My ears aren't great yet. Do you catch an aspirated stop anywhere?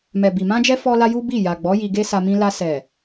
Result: no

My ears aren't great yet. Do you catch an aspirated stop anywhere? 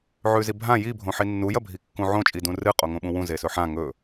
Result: no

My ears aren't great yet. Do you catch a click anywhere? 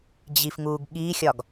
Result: no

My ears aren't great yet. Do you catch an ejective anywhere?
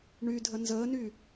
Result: no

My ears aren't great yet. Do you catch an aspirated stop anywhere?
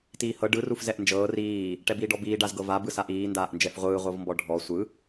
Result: no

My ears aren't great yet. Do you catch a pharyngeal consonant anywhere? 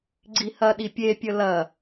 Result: no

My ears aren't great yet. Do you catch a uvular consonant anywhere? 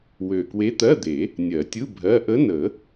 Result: no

